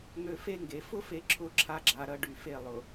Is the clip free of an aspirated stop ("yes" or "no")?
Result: no